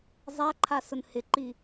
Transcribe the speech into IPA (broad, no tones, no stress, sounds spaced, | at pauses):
zˤ a ǃʰ a s ʊ n h ɪ ǃ i